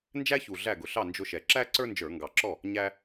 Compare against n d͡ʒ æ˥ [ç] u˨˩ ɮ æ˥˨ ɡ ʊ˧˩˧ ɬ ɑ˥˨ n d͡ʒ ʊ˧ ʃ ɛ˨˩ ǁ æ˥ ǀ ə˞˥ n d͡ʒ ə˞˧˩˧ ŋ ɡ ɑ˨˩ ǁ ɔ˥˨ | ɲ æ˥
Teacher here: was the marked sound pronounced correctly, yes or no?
yes